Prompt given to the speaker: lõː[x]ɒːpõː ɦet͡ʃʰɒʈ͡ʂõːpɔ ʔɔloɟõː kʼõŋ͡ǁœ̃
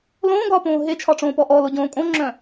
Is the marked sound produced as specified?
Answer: no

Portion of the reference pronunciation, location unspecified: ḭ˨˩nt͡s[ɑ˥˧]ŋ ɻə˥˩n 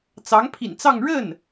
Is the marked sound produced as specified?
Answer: yes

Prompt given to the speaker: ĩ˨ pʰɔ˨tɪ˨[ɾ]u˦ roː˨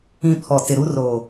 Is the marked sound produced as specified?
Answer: yes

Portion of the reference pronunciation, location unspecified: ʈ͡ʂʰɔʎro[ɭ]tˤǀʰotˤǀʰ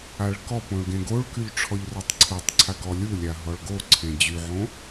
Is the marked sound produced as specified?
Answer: no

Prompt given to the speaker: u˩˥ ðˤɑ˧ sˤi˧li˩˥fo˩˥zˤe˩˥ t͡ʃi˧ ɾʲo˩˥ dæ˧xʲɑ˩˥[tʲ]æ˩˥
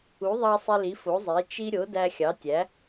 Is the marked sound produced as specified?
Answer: yes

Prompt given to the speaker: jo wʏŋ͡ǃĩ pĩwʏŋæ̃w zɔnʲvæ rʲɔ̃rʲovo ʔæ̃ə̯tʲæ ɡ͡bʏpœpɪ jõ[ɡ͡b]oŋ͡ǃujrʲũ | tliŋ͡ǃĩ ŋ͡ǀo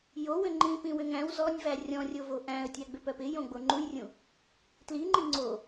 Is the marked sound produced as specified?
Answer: yes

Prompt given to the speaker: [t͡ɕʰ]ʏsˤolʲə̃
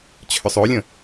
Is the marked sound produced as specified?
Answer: yes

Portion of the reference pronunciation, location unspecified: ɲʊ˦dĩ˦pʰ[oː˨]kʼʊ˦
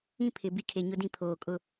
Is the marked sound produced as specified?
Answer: yes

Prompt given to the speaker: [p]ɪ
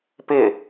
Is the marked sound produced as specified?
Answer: yes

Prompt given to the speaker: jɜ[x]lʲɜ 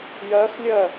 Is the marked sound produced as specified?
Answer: yes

